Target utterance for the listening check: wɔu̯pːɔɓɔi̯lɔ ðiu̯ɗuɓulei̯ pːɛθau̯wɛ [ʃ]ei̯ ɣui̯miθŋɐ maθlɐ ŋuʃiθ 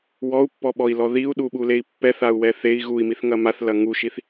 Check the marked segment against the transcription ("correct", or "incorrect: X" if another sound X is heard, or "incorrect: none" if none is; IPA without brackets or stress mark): incorrect: θ